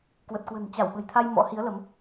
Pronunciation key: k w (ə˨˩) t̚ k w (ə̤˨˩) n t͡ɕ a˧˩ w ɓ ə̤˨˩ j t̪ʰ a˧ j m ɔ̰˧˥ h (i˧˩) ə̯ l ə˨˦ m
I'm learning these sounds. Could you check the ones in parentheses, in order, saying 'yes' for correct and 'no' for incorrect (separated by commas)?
yes, yes, no